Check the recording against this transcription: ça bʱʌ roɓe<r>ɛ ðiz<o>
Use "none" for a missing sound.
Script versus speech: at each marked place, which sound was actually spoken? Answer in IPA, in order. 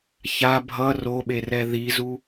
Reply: r, u

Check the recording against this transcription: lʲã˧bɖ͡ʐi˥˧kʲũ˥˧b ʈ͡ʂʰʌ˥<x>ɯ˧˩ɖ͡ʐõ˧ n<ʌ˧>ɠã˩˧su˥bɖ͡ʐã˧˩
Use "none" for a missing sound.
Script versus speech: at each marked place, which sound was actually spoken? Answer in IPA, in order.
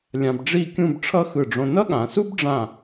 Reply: x, ʌ˥

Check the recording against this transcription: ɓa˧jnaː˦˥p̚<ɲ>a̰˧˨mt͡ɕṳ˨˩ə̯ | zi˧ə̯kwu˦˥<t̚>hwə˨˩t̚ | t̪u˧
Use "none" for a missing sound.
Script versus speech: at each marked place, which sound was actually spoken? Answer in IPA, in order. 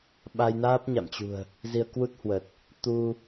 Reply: ɲ, t̚

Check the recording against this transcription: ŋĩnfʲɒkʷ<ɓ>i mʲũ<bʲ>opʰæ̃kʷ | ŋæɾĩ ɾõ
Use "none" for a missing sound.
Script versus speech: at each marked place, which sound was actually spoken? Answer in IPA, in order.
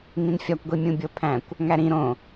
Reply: ɡʷ, bʲ

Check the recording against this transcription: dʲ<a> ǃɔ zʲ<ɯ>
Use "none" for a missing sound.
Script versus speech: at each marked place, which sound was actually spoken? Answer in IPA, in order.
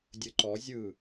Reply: ə, ɯ

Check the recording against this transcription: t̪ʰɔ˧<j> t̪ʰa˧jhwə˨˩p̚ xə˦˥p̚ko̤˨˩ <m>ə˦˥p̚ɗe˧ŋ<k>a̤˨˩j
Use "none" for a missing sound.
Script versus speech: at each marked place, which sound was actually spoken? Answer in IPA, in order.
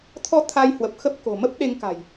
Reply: none, m, k

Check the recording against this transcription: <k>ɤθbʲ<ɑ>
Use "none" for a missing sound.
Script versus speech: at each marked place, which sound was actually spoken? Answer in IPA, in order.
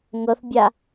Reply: ŋ, a

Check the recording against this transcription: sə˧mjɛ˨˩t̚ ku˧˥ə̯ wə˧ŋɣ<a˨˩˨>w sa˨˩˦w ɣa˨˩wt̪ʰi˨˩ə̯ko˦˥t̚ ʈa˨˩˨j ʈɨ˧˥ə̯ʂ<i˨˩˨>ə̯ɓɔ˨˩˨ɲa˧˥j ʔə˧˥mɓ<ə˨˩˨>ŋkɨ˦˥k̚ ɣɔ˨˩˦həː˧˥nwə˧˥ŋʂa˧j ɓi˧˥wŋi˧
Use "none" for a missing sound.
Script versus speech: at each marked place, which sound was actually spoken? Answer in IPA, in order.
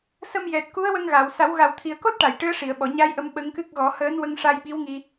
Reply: a˨˩˨, i˨˩˨, ə˧˥

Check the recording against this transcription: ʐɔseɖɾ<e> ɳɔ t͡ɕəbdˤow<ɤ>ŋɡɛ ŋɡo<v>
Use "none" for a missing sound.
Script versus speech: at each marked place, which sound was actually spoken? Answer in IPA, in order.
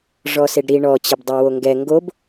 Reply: i, o, b

